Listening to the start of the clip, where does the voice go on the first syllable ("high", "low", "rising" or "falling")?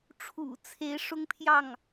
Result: low